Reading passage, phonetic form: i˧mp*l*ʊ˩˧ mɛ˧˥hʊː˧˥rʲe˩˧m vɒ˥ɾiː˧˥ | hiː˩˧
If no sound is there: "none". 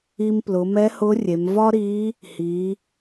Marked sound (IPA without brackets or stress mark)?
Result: l